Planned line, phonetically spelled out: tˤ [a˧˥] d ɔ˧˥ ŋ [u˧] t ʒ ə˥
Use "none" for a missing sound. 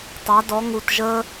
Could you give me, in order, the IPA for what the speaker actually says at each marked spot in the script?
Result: a˧˥, u˧

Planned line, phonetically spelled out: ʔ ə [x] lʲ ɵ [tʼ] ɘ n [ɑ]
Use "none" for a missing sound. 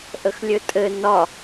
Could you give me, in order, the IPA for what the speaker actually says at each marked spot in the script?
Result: x, tʼ, ɒ

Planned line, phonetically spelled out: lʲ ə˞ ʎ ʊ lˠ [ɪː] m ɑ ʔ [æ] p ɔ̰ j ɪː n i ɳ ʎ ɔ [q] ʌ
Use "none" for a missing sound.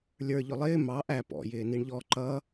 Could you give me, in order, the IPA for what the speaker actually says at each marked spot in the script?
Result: ɪː, æ, ǃ

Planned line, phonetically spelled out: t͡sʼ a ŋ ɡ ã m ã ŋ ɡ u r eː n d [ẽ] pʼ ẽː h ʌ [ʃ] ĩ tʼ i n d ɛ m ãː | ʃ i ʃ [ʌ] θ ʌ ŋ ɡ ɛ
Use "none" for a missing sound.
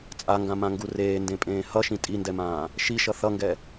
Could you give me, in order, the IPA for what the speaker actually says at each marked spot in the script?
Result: ẽ, ʃ, ʌ

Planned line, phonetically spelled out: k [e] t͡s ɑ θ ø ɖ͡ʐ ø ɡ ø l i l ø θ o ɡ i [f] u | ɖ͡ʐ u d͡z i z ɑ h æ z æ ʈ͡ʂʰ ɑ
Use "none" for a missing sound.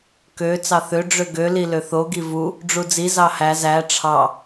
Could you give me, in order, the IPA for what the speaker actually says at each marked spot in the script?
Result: ø, v

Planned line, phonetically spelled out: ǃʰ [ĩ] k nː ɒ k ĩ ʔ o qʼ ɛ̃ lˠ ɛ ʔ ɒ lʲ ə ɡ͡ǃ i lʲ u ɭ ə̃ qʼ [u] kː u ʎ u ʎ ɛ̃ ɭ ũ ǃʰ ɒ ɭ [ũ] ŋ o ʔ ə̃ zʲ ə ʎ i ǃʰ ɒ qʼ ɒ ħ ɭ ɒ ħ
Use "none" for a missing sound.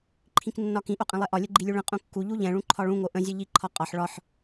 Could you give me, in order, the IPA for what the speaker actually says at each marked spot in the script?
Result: ĩ, ũ, ũ

